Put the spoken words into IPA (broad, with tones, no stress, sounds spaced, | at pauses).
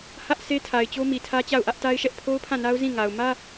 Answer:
h ä˦ ʔ sʰ e˦ tʰ a˨ ɪ̯ t͡ɕ o˦ m i˨ tʰ ä˦ t͡ɕ a˦˨ ʊ̯ ʔ ä˦ ʔ t a˦ ɪ̯ ʃ ɛ˦ ʔ pʰ o˦ ʊ̯ pʰ ã˦˨ n a˦ ʊ̯ z ĩ˦˨ ŋ a˨ ʊ̯ m ä˦